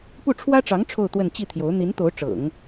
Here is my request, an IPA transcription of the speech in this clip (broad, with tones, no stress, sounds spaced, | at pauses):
p u˥˩ ʈ͡ʂʰ w ä˥ ʈ͡ʂ ɑ˧˥ ŋ ʈ͡ʂʰ o˥˧ ʊ̯ t̪ w ə˥˧ n t͡ɕ i˥˩ t̪ʰ j o˧˥ ʊ̯ n̪ i˧˥ n t̪ o˧˥ ʊ̯ ʈ͡ʂ ɤ̰˨˩˦ ŋ